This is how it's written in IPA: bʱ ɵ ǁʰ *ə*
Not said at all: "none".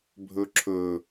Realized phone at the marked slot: ɵ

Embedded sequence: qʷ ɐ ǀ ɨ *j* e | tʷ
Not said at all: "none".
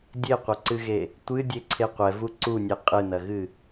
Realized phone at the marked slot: ɣ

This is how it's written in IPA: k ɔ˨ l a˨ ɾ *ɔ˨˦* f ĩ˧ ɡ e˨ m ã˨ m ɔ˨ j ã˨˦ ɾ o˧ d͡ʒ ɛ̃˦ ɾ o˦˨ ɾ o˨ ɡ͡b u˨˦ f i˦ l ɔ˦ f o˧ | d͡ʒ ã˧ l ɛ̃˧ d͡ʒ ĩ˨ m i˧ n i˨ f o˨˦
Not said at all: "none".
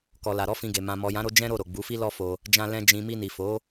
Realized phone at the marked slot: ɔ˨˦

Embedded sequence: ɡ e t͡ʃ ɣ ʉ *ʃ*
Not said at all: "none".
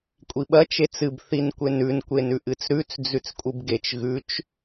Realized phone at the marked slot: t͡ʃ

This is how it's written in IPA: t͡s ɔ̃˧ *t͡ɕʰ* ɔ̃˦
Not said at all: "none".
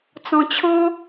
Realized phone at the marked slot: t͡ɕʰ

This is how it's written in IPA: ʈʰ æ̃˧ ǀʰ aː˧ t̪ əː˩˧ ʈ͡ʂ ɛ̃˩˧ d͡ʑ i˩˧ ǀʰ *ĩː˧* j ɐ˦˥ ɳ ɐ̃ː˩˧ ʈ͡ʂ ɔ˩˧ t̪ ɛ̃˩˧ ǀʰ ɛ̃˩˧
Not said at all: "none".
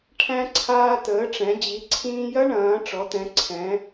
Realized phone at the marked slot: ĩː˧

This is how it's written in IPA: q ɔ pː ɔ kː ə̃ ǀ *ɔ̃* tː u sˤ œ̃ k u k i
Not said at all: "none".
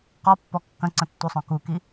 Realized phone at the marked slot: ə̃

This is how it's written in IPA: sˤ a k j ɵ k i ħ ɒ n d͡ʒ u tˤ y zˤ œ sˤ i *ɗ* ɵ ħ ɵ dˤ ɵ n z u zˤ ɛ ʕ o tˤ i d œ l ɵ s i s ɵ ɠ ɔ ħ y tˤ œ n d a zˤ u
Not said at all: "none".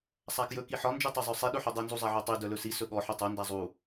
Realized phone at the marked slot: ɗ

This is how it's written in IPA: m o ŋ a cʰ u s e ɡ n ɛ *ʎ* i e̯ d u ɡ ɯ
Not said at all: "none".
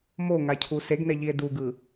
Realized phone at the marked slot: ʎ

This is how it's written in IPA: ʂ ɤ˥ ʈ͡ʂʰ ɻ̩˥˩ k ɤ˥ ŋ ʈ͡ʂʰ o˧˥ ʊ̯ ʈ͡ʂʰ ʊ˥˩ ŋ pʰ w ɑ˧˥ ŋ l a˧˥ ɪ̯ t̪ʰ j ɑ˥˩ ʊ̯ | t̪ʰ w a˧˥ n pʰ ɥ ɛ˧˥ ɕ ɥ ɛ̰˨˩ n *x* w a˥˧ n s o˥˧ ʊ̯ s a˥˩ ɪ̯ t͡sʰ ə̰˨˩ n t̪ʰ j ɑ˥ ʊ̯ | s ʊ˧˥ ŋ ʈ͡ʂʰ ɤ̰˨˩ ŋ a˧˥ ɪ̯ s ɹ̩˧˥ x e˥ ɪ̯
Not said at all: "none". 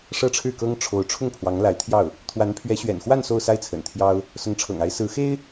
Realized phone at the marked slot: x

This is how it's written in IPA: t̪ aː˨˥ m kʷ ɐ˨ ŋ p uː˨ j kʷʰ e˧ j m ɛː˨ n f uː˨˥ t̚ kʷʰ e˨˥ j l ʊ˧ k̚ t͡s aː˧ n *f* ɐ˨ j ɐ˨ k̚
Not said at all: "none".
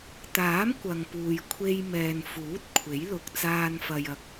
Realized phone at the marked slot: f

